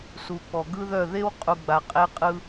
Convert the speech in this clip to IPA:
s u˨ k͡p ɔ˨ ɡ ɯ˦ ð œ˦˨ ð e˦ w qʼ u˨ ɡ͡b a˨ qʼ e˦ qʼ ɯ˦

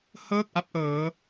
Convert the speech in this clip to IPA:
h ɤː˥˩ k̚ ʔ a˥˩ p̚ ʔ ɤː˦˥

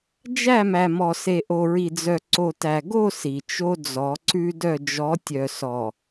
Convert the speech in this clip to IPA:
d͡ʒ æ˦˨ m æ˨ m ɔ˨ s e˨ ʔ o˨ ɹ i˨ d͡z œ˨ ǀ o˨ t æ˨ ɡ o˦˨ s i˨ t͡ʃ o˦ d͡z ɔ˨˦ ǀ ʉ˦ d œ˦˨ d͡ʒ ɔ˨˦ tʲ œ˨ s ɔ˨

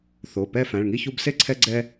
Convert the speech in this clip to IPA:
θ o˩˧˩ p ɛ˥˨ f æ̃˩˧˩ ɭ ŋ i˥˨ ç u˦ b s e˥˨ ǀʰ ɛ˦ ɡ͡ǀ ɛ˦

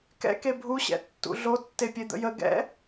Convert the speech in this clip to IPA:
k ɛ̰ k e bʱ u ɕ ɛ̰ tː ṵ ɮ o tː e pʲ e d̪ ə̰ j ə ɡ ɛ̰

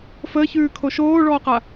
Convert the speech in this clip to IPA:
f əː ç ʉː kʰ o ʃ oː ɭ ɔː q a

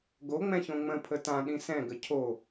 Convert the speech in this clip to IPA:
ɡ o ŋ͡m ɛ̃ ç õ ŋ͡m ə̃ pʰ ə t ã ɗ ĩ s ɛ̃ ɡ ə cʰ o

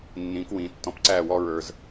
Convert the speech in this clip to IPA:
nː ĩː˨˦ k w ĩː˨ tː ɔ̃˦ p ǀ æː˦˨ w ɔː˦ ɹ ə˞˦ z

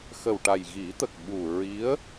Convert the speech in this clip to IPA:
x ə˨˩ w ʈ a˨˩ j ɣ i˨˩˦ t̪ ə˨˩ k̚ ɓ u˨˩ ɹ i˧˥ ə̯

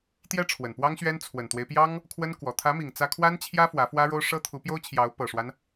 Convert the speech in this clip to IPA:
t̪ j ɛ˥ ʈ͡ʂʰ w ə˨˩ n p w ɑ˥ ŋ ɕ ɥ ɛ˥ n t͡sʰ w ə˨˩ n t̪ w e˦ ɪ̯ p j ɑ˥ ŋ | kʰ w ə˥ n k w ɔ˨˩ t̪ʰ ä˧˥ m i˨˩ ŋ t͡s ä˥ kʰ w a˥ n t͡ɕʰ j ä˥ f w ä˧˥ f w ä˥ ɻ o˥ ʊ̯ ʂ ɤ˥ t̪ʰ u˧˥ p j o˥ ʊ̯ t͡ɕʰ j ɑ˧˥ ʊ̯ p ɤ˨˩ ʂ w a˦ n

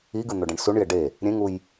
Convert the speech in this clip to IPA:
i ɡ ɯ n̪ o ɖ ẽ ɳ s u ɳ j e ɖ e | ɾʲ ẽ ŋ u j

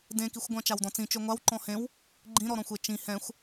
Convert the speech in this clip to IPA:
d ẽ k i xʷ ɡʷ ã t͡ʃ a w d ɔ̃ t͡s ĩ t͡ʃ ø ŋʷ a w ǃ ɔ̃ h ẽ w | ɡ͡ǃ ĩ ɾ ɔ ɾ ɔ̃ xʷ e t͡ʃ ĩ h ɛ̃ xʷ

